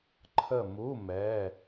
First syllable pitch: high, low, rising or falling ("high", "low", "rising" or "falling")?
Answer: falling